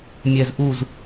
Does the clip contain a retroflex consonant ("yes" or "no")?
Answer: no